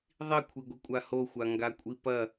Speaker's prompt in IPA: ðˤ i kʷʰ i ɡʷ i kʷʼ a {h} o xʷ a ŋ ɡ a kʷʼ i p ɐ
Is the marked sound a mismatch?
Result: no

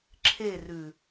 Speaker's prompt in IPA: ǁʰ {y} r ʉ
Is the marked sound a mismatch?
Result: yes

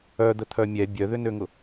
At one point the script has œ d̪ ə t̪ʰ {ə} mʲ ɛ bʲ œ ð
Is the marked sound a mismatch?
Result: yes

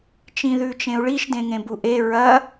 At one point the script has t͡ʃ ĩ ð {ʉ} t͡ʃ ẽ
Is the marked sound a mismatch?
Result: no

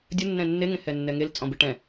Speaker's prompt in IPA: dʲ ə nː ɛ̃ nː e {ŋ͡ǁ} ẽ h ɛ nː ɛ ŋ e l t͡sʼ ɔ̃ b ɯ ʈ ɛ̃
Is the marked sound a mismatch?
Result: yes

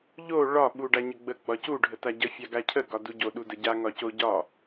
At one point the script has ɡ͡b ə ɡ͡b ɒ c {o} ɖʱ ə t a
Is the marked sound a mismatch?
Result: yes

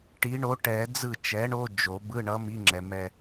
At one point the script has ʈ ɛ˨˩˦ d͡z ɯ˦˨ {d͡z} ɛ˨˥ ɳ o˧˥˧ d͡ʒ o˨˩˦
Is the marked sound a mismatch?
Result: yes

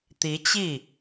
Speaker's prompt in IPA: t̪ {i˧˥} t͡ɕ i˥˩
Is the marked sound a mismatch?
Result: no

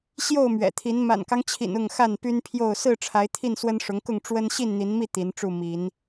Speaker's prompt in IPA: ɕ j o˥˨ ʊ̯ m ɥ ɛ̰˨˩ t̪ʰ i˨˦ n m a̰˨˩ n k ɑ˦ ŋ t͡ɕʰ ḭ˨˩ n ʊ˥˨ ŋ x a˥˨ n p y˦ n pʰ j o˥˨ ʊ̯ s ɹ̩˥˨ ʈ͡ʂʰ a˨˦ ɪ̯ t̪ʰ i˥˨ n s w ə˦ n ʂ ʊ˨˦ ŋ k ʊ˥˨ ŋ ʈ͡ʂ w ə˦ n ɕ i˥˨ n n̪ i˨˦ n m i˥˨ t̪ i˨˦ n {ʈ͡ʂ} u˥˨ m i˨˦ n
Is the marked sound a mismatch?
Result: no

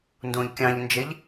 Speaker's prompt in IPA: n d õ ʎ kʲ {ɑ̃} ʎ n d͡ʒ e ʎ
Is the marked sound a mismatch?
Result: no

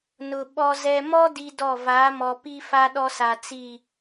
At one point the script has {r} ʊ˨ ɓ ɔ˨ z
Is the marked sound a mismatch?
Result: yes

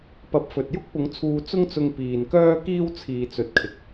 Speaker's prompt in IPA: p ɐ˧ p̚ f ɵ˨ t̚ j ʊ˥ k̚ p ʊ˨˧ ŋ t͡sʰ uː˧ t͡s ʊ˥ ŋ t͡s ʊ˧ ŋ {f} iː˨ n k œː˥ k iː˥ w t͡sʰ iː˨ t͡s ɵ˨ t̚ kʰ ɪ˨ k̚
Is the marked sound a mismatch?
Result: yes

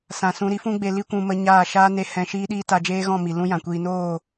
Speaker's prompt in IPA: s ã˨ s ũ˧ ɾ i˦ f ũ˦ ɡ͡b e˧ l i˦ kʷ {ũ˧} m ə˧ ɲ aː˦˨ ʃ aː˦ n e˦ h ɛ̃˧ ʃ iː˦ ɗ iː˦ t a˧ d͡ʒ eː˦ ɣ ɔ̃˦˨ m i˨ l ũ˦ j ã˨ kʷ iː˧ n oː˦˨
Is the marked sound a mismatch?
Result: no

